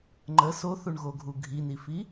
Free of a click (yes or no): no